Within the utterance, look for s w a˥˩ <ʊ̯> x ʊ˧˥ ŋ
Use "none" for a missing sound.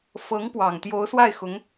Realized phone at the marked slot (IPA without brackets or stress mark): ɪ̯